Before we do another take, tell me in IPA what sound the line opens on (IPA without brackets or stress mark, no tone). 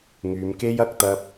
ŋ